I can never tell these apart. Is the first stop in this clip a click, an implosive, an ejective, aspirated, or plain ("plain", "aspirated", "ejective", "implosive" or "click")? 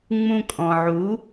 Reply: ejective